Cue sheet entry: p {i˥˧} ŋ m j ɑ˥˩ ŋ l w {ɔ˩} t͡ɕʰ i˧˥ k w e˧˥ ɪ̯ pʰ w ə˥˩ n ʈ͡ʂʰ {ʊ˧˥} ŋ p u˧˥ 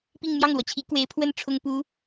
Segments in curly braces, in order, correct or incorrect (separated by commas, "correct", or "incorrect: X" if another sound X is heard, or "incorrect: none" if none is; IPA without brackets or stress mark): correct, correct, incorrect: ʊ˥